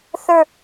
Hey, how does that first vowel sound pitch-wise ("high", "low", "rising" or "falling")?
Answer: falling